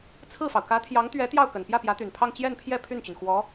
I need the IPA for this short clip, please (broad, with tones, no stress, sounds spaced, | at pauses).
t͡sʰ ɹ̩˥˩ f ɑ˩ ʊ̯ k ä˧˥ t̪ʰ j ɑ˧˥ ŋ t̪ ɥ ɛ˧˥ t̪ j ɑ˥˩ ʊ̯ k ə˨˩ n p j ä˥˩ p j ä˧˥ t̪ y˨˩ n pʰ ɑ˥˧ ŋ t͡ɕ j ɛ˥˧ n pʰ j ɛ˥˧ pʰ y˥˩ n t͡ɕ y˩ n x w ɔ˧˥